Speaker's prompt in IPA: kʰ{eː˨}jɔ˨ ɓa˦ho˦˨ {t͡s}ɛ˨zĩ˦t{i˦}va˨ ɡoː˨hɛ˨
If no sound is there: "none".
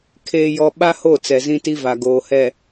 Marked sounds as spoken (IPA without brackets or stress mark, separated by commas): eː˨, t͡s, i˦